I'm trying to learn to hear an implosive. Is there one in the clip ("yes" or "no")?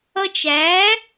no